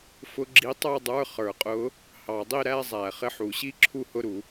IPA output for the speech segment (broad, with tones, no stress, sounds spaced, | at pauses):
f ʊ˧˥˧ ɡ͡ǁ i˧˥ tˤ ə˞˥˧ dˤ ə˞˧˥˧ χ ə˞˨˩˦ qʼ ʊ˧˥ | h ɑ˨˩˦ dˤ i˥˧ ɾ æ˥˧ zˤ æ˨˩˦ χ ɪ˧˥˧ ħ u˨˩˦ ɕ i˥˧ ǁʰ u˥˧ h ʊ˧˥˧ ɾ u˨˩˦